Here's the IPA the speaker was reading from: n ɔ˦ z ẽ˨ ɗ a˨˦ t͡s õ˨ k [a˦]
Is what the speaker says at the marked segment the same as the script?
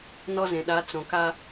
yes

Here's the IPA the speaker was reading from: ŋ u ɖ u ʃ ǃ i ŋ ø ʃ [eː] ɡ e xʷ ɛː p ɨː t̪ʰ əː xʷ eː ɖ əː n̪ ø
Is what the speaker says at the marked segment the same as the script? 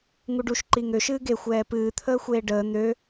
no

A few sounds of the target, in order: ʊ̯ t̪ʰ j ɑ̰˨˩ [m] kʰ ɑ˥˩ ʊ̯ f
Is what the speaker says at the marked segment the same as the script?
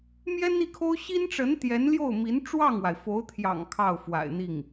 no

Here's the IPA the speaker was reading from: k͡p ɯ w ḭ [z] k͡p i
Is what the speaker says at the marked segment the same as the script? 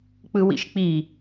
no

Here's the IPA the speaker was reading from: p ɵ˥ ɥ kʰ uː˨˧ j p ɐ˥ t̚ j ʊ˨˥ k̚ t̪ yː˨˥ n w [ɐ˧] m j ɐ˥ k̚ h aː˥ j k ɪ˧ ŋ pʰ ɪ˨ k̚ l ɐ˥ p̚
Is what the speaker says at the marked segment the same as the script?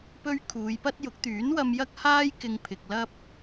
yes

